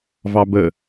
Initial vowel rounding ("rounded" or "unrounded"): unrounded